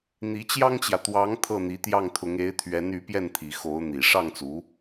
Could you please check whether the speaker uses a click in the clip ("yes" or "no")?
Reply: no